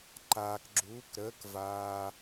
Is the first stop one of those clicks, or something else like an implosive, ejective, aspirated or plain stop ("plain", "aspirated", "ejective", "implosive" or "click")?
click